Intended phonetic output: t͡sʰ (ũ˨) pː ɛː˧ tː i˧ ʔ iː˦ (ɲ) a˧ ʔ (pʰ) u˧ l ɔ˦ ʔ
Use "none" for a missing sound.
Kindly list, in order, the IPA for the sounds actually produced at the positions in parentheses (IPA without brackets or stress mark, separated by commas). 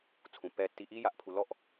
ũ˨, j, pʰ